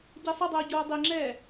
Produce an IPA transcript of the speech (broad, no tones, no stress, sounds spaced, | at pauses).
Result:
ɟ ɛ sˤ ʌ dˤ oː ɟ oː dˤ i ŋ͡ǁ ɛː